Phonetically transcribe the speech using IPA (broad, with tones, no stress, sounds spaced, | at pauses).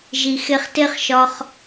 ʒ i˧ x e˧ χ t e˦ χ ʃ ɒ˧ χ